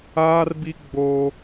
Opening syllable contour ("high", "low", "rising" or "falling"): high